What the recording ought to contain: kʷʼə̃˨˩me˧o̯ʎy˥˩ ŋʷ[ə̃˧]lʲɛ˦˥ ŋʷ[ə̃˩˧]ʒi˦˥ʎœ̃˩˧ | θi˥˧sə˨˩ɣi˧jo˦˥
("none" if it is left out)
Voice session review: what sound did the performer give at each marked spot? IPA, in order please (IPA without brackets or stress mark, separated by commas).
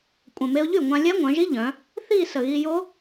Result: ã˧, œ̃˩˧